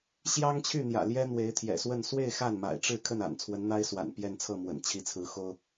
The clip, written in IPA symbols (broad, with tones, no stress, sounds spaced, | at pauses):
ɕ j ɑ˥ ŋ t͡ɕʰ y˥˩ n̪ j ä̰˨˩ l j ɛ˥ n̪ w e˧˥ ɪ̯ t̪ʰ j ɛ̰˨˩ s w ə˥˧ n s w e˥˧ ɪ̯ x a˥˩ n m a̰˨˩ ɪ̯ ʈ͡ʂ ɻ̩˥˧ kʰ ə˥˩ n a̰˨˩ n t͡sʰ w ə˧˥ n n̪ a˥ ɪ̯ s w a̰˨˩ n p j ɛ˥˧ n t͡sʰ ɤ˥˩ m w ə̰˨˩ n t͡ɕʰ i˧˥ t͡sʰ ɹ̩˧˥ x o˥ ʊ̯